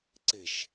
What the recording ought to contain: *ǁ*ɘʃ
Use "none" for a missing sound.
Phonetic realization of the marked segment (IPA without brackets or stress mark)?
ǀ